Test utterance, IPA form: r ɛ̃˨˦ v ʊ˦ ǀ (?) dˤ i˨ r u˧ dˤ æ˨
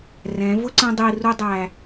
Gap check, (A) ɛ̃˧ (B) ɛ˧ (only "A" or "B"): A